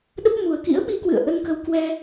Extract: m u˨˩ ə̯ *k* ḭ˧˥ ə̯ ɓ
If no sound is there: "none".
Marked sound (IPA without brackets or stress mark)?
k